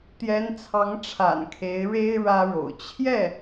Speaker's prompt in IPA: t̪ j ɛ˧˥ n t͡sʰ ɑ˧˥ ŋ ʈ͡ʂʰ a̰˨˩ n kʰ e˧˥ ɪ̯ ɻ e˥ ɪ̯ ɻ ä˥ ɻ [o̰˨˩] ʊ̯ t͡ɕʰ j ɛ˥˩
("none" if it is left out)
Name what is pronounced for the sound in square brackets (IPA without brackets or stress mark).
o̰˨˩